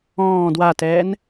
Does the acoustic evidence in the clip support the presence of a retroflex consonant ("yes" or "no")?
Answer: no